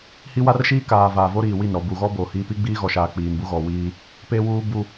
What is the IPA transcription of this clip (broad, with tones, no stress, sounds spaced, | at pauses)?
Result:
h i˦ w a˦ r ʃ iː˦ k aː˨ v aː˨ v o˦ ɾ iː˨ w i˦˨ n ɾ ɔ˨ b u˨ ɣ ɔ˦ b o˨ h i˦ p i˦ ɡ͡b iː˦ ɣ ɔ˨ ʃ aː˨ k͡p iː˨ n b u˦ ɣ ɔ˨ w iː˦ | p e˦ w uː˦ b u˦